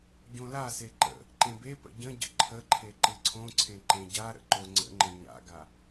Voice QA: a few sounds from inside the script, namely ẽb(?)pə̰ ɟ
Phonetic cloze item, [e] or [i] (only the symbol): e